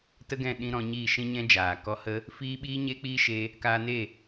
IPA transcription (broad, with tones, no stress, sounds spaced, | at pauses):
t ə˦ ɡ ɛ̃˦˨ ɗ ĩ˧ ɾ ɔ̃˧ ɲ iː˦˨ ʃ ĩ˦ ɲ ɛ̃˦ d͡ʒ aː˨ k ɔ˧ h ə˦ | f iː˦ ɓ iː˦ ɲ e˦ k͡p iː˦ ʃ e˦ | k aː˧ n e˦˨